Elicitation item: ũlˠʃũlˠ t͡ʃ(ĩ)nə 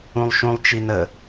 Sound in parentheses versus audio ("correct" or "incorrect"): incorrect